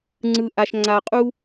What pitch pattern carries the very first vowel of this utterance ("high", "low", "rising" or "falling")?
low